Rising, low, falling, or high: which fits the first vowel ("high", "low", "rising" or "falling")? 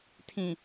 low